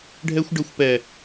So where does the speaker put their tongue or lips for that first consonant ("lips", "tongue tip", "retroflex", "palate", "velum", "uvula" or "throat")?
retroflex